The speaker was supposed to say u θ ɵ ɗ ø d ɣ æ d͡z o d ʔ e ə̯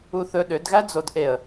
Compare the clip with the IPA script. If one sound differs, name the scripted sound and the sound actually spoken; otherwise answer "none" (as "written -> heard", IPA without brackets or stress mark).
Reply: none